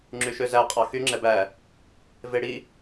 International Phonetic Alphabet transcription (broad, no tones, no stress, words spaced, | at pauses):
ŋ͡ǁyʃøzæ qʼɑxy ŋ͡ǁɛbæ | veɽi